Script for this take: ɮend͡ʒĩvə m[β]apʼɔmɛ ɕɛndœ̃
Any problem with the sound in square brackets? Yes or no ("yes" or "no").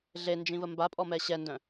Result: yes